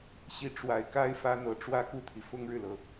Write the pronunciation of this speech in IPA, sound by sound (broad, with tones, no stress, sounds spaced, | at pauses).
ɕ i˥˩ ʈ͡ʂ w a˨˩ ɪ̯ k a˥ ɪ̯ f ä˥ n̪ ɤ˧˥ ʈ͡ʂ w ä˥˧ k u˥˩ t̪ʰ i˩ f ʊ˥ ŋ ɻ ɻ̩˨ l ɤ˩